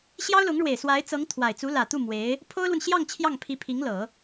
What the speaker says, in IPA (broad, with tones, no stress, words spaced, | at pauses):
ɕjɑ˥ʊ̯lʊ˧˥ŋɻwe˨˩ɪ̯ swa˧˥ɪ̯t͡sɤ˧˥ŋ t̪ʰwa˨˩ɪ̯ t͡su˧˥lä˨˩t̪u˥˩ mwe˧˥ɪ̯ | pʰo˥ʊ̯lwə˨nɕjɑ˥˧ŋ t͡ɕʰjɑ˥˩ŋpʰi˧˥pʰi˧˥ŋlɤ˨˩˦